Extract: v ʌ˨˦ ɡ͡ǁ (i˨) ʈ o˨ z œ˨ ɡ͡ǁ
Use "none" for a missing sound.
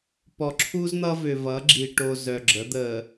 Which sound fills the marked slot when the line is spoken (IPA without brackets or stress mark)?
i˨